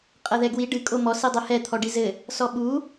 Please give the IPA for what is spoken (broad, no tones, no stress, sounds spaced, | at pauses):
qʼ ɐ ð ɛ ɡ w i ɖ ɨ kʼ o m ɔ s i dˤ e h ɛ t̪ʰ ɔ ɖ i z ɘ | s ɔ ɓ u